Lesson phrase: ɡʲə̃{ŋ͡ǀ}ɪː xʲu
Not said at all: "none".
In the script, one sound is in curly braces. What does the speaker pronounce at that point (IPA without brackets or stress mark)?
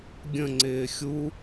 ŋ͡ǀ